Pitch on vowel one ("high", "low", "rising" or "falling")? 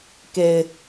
low